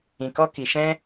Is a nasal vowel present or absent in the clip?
present